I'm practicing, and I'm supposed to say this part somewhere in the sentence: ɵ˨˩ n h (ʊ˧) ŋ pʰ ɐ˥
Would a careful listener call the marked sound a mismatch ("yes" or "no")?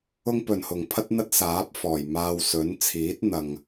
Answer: yes